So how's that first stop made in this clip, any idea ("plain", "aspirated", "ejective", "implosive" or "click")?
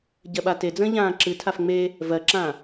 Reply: plain